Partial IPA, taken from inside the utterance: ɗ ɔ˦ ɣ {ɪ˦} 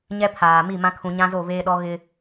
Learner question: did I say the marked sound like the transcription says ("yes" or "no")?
yes